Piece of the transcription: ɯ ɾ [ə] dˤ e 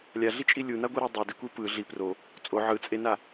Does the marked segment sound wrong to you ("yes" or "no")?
yes